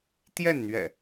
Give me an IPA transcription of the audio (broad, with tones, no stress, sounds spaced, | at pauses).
t̪ j ɛ˥˨ n n̪ ɥ ɛ̰˨˩